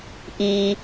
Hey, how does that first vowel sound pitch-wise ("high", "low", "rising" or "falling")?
low